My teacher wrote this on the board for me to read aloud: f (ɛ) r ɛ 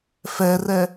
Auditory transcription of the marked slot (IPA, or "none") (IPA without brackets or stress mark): ɛ